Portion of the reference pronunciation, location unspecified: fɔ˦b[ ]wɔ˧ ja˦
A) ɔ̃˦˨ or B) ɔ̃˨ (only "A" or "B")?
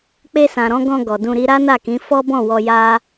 A